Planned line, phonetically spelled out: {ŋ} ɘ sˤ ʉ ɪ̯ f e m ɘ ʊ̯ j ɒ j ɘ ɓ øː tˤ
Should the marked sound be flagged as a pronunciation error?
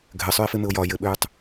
yes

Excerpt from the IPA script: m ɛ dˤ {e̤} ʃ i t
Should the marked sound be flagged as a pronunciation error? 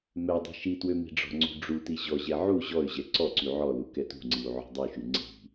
yes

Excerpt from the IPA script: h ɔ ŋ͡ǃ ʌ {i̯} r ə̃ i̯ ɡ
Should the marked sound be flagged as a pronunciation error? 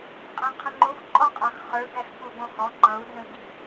yes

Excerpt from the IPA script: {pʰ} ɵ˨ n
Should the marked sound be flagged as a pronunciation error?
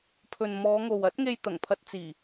no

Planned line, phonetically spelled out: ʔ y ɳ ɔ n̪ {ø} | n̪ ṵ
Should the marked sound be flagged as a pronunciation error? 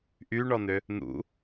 no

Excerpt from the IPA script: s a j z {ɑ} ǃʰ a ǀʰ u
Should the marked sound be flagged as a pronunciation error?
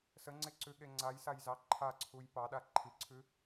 no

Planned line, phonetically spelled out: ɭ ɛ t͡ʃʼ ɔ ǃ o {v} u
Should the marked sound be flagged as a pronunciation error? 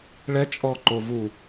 no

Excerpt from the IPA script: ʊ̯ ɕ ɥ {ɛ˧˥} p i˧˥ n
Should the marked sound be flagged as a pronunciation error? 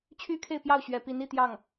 yes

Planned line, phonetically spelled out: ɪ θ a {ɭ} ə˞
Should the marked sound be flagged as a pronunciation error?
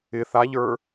yes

